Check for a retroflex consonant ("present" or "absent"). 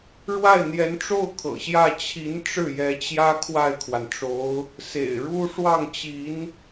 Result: present